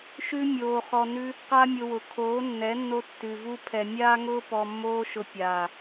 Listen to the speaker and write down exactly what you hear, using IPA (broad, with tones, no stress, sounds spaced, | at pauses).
ʃ ʉ˦ mʲ oː˧ χ ɔ˧ n ʉ˦ | q a˦ mʲ ʊ˧ w ʊ˨ kʰ oː˨˦ nː ɛ˨˦ nː o˧ tː ʉ˨ v u˦ pʰ ɛ˨ mʲ aː˦ ŋ ʊː˦ p ɔ˧ mː oː˦ ʃ ʊ˧ pʲ aː˨